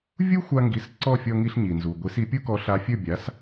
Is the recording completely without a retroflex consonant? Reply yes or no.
yes